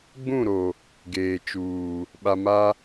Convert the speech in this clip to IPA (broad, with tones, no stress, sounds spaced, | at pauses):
ɡ͡b ũ˦˨ ɾ o˨ | ɡ eː˨ t͡ʃ uː˨ | ɓ a˨ m a˦